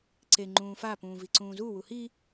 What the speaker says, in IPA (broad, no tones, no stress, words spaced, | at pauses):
ǀe ŋ͡ǃũːfa pũːviǀũːzu wuhi